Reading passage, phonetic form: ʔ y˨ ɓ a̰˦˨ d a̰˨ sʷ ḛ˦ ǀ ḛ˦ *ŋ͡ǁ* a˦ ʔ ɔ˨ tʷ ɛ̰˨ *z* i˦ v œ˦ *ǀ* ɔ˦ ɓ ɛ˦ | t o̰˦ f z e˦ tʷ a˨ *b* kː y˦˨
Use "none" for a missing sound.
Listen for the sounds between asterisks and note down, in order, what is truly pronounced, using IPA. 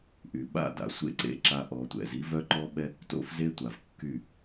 ǁ, z, ǃ, v

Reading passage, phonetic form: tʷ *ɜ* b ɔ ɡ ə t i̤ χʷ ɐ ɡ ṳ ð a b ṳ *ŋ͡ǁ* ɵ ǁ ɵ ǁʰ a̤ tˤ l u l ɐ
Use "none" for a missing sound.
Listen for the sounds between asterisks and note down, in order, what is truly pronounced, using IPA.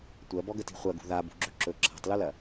ɜ, ɡ͡ǁ

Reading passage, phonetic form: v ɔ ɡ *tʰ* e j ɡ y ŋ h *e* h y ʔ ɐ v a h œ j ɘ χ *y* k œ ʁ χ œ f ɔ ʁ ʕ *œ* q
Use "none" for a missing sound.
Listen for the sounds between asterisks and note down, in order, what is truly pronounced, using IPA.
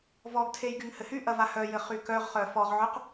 tʰ, ɘ, y, œ

